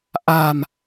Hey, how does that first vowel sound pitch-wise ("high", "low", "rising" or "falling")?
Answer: low